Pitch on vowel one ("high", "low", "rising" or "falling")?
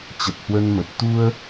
low